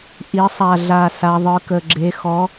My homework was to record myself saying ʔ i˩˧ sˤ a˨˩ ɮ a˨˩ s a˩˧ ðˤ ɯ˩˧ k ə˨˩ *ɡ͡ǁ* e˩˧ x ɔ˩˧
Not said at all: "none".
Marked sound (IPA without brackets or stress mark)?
ɡ͡ǁ